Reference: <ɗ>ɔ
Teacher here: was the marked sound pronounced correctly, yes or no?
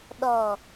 yes